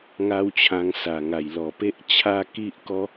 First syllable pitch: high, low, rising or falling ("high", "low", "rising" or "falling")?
high